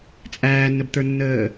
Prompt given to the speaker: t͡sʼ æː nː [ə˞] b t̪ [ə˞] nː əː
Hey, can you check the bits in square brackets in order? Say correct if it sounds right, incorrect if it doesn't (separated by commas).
incorrect, correct